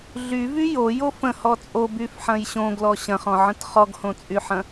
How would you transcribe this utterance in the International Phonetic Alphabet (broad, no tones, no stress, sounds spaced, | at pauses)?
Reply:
ɮ y v y j o j o f ə̃ h ɔ t͡sʼ o b y f ħ ɐ̃ j ɕ õ ɡ l ɔ ɕ ɐ̃ χ ɔ̃ ʕ ə̃ t χ ɔ ɡ h õ t͡sʼ y ħ ɐ̃